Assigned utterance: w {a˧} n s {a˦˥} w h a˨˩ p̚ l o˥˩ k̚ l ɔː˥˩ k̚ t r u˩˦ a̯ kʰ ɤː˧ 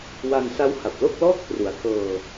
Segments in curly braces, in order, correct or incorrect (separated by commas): correct, correct